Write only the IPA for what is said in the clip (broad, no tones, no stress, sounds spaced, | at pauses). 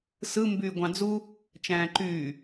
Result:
s ɯ m b yː ɡʷ ɑ̃ d͡z u | t͡ʃ æ̃ː ǃ yː